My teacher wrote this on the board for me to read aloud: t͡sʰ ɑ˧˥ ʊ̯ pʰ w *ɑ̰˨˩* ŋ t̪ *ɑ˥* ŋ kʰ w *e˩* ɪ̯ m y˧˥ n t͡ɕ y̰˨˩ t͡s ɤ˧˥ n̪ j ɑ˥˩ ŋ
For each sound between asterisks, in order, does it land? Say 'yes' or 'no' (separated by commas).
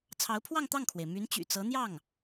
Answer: no, no, yes